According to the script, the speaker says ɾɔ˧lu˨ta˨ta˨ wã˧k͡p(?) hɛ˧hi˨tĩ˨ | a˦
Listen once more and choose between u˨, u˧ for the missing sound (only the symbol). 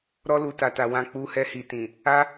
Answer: u˧